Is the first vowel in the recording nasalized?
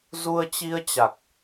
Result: no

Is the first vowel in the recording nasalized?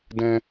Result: yes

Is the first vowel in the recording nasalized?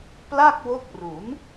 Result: no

